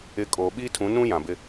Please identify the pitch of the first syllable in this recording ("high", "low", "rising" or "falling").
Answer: rising